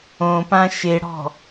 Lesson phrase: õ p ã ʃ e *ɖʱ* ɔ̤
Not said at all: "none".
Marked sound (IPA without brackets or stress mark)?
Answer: ɽ